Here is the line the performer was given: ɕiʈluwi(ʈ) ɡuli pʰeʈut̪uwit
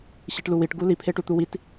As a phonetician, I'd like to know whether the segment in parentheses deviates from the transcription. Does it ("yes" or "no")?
no